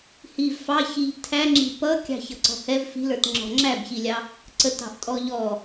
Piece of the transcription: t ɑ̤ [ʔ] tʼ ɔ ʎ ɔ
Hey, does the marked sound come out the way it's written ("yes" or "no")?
yes